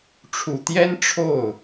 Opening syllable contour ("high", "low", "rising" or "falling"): low